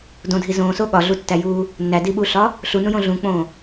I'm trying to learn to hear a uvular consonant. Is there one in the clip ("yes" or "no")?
no